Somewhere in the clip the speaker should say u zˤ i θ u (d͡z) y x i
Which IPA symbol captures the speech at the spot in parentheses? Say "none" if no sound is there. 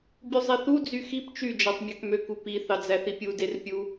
d͡z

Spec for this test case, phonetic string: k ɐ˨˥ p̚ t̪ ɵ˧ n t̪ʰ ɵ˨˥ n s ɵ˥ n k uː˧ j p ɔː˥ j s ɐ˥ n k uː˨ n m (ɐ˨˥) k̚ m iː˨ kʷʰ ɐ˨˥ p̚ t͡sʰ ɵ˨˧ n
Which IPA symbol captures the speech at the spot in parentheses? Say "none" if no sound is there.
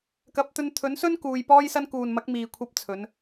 ɐ˨˥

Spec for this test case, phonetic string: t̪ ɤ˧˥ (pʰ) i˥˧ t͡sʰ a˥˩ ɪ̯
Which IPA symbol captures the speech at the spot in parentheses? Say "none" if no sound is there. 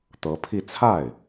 pʰ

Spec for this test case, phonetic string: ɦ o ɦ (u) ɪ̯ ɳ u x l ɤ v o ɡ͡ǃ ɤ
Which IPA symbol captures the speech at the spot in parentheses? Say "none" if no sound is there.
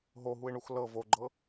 u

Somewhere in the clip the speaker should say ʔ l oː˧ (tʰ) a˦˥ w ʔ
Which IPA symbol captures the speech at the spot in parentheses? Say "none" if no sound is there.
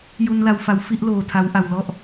tʰ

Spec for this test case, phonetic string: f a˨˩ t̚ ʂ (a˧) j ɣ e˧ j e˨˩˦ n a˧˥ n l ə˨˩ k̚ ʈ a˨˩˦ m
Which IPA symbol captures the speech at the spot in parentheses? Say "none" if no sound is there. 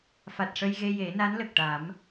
ə˧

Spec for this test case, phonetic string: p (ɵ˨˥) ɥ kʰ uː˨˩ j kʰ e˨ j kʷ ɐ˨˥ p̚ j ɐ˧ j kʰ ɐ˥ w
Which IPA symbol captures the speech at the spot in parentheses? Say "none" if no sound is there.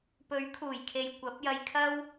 ɵ˨˥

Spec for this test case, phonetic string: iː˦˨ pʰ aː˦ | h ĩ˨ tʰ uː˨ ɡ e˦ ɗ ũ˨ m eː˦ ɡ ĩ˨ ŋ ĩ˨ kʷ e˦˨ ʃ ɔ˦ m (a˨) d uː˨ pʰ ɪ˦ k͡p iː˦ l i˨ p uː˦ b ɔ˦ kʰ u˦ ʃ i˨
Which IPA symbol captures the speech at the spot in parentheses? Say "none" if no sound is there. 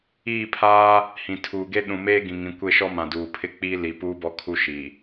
ã˨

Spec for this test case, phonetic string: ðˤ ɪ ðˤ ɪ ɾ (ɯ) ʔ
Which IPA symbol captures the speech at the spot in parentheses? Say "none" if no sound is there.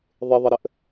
ə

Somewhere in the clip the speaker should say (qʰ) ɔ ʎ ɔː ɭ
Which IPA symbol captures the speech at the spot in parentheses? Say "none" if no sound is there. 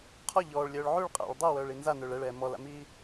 qʰ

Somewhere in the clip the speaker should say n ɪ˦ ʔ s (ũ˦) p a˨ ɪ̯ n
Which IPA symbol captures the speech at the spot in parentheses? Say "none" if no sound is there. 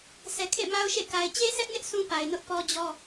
ũ˦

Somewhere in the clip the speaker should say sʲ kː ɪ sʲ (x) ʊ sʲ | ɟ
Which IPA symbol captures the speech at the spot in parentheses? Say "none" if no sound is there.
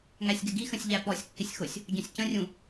x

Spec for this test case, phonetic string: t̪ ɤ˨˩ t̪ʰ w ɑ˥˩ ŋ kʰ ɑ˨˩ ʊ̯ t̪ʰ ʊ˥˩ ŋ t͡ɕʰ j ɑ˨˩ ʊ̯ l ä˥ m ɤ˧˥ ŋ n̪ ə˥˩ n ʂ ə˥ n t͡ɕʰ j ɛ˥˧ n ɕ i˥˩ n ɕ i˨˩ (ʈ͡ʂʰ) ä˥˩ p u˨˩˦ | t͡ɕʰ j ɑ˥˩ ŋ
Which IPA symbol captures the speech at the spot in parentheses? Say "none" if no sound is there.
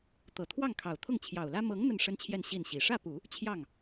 ʂ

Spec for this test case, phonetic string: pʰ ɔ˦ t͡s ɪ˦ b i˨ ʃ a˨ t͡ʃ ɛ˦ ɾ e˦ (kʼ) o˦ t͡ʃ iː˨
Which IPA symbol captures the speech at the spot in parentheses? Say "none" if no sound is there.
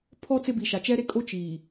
kʼ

